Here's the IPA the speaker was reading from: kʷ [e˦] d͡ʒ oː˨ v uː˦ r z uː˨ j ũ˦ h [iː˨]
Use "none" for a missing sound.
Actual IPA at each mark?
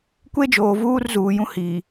e˦, iː˨

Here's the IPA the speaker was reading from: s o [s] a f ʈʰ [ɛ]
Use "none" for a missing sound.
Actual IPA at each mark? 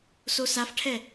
s, ɛ

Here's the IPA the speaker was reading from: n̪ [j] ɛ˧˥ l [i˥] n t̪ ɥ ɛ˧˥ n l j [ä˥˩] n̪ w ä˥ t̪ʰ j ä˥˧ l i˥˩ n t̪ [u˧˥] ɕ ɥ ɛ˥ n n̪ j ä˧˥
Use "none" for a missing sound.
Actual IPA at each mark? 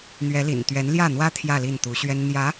ɥ, ḭ˨˩, ä˥˩, u˧˥

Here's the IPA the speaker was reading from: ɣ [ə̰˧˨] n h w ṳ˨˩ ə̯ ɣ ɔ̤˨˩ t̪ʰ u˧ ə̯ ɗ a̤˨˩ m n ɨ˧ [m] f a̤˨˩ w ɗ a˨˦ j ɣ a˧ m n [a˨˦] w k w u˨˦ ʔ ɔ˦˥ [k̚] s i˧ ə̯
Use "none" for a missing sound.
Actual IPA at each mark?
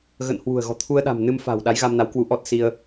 ə̰˧˨, m, a˨˦, t̚

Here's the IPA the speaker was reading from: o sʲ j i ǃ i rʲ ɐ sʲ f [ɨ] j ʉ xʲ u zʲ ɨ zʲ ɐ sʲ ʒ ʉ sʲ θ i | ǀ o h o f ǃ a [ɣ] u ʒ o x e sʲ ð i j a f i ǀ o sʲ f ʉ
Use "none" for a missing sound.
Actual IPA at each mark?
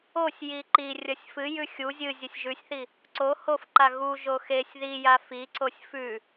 ɨ, ɣ

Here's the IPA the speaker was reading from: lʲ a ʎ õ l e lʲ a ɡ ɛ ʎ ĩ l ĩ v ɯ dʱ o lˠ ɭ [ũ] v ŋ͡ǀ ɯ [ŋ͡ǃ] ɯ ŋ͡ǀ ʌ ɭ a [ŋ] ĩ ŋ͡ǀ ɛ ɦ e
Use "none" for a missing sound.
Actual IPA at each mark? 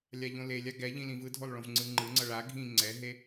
õ, ŋ͡ǃ, ɡʱ

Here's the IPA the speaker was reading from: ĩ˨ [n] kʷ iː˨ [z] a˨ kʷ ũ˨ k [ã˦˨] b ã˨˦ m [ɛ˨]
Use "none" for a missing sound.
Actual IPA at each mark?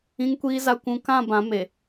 ŋ, z, ã˦˨, e˨

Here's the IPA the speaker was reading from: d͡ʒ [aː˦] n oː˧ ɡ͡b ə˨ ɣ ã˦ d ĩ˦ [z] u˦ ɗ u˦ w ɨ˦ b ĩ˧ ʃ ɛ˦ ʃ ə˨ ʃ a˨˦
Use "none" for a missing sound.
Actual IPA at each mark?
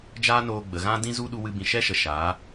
aː˦, z

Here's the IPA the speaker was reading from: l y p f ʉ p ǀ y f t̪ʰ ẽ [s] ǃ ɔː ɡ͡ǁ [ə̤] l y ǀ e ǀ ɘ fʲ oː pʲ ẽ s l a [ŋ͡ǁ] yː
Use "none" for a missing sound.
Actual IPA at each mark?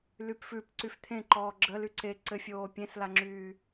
none, ə, ŋ͡ǁ

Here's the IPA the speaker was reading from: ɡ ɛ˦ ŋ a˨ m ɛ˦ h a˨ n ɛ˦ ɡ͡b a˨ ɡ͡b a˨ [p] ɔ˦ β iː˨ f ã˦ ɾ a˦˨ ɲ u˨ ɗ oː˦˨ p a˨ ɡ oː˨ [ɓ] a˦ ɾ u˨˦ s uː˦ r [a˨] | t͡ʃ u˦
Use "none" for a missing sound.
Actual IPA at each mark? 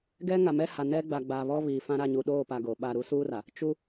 β, ɓ, a˨

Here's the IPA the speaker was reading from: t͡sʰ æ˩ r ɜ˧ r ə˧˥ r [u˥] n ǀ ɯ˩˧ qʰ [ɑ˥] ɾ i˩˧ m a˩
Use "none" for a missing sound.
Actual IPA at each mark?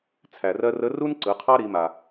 u˥, ɑ˥

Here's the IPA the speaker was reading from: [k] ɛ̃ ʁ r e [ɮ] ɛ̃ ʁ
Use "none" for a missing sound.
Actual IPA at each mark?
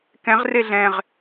k, ɮ

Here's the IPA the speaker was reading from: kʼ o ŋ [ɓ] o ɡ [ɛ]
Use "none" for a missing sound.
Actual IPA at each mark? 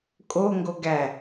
ɡ, æ

